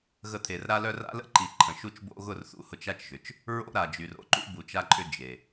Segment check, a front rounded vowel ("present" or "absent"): present